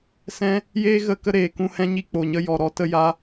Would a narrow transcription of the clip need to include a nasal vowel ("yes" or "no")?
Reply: yes